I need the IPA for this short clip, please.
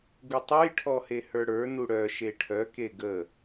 ɡ u tˤ u j ʈʰ ɔ h e h ə˞ ɽ ə˞ n u ɽ œ ʃ e ʈʰ œ k e ɡ ə

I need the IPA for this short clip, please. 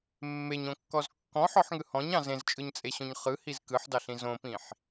mː e ɲ õ kː ɔ z kː ɔ̃ ħ ɔ ħ ŋ ɯ h ɔ̃ ɲ ɑ̃ z ẽ z t͡ʃʼ ɯ ɲ t͡sʼ e ɕ õ ɲ χ ɯ h i z k ɯ ħ d ɑ ɬ ĩ z õ p ĩ ħ

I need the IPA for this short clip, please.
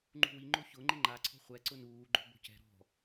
ŋ͡ǃ ṳ w i ŋ͡ǃ o ç ʊ ŋ͡ǃ ɪ ŋ͡ǃ a ǀʰ ɔ̤ χʷ ɛ ǀ ʊ n uː ɡ͡ǃ o̤ b o̤ c ɛ̤ ɾ ɔ̤

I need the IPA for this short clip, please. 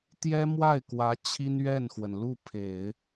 t̪ j ɛ˥ m w a˥˩ ɪ̯ k w ä˧˥ t͡ɕʰ i˥ n ɥ ɛ˥˩ n x w ə˩ n l u˥˩ pʰ e˨˩˦ ɪ̯

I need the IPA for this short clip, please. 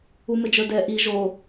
u m ɘ d͡ʒ ə˞ d ɛ ʔ i ʒ o

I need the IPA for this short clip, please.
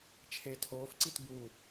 t͡ʃʰ e tʰ oː f ǀ i t b u

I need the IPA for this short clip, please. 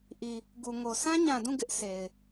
ʔ i˨ | ɡ u˨ ŋ o˨ s ã˦ ɲ ã˨ d ũ˦˨ ɡ ɪ˦ ʔ s e˨ ɪ̯

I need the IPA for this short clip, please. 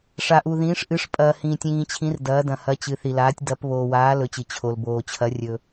ʂ a˩ ʔ u˩ ð ĩː˩˧ ʂ ʔ ɨ˩˧ ʂ pʼ ɐː˩ h ĩː˩ tʲ ĩː˩ t͡ɕʰ ĩ˩˧ r d ɐː˩˧ d ɐ̃˩ h ɐ˩˧ t͡ɕ ɨ˩˧ θ i˩ l aː˩˧ tʲ d ɐ˩˧ p β oː˩ w aː˩˧ l ɵ˩˧ t͡ɕ ɨ˩ t͡ɕʰ o˩ l b oː˩ t͡ɕʰ ɐ˩˧ rʲ ɵ˩

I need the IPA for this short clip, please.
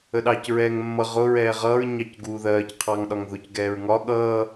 ə ɗ ɑ c ɹ ɛː ŋ mː ʌ ʁ ʊ ɹ ɛː ʁ ʌː ɹ ɲ ɑ c ɡ uː ð ɜː c qʰ ɑ ŋ ɗ ɒ ŋ ð ʊ c ɡ ɛː ɹ ŋ ɒ ɠ ʌː

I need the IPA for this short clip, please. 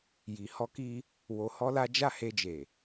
j i˨ h ɔ˧ k i˧ | w o˧ h ɔ˦ l a˦ d͡ʒ a˦˨ h e˧ d͡ʒ e˨

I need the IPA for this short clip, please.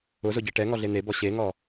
ʊ z ʊ ɟ ɛ ʈ ɛ ŋ ɔ ɮ e n̪ e b ɔ ɕ e ŋ ɔ

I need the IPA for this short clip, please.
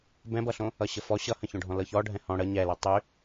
b ɛ̃ b ʌ ɬ õ | ʌ ɕ ə f ɔ ɕ ʌ h ə̃ ç õ ɖʱ ɔ̃ l ɤ ç ɔ ɖʱ ɛ̃ h ɔ̃ ɽ ə ɲ ɛ l ɛ tˤ y

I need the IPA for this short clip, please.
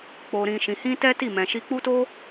k͡p o˧ ɾ ĩ˧ ʃ ĩ˧ h ĩ˦ t ɛ˦ t i˦˨ m ɛ̃˧ ʃ i˦ k͡p u˦ t o˦

